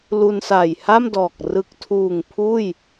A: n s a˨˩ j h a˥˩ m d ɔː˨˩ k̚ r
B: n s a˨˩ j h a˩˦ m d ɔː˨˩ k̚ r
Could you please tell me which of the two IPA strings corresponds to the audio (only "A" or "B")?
A